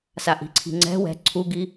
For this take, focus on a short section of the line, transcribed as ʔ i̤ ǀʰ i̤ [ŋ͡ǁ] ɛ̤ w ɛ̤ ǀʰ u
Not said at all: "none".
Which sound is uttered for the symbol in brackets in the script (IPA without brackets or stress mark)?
ŋ͡ǀ